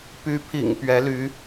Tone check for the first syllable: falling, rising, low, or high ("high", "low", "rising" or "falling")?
rising